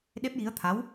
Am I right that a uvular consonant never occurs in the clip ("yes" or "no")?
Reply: yes